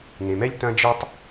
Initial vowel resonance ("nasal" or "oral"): nasal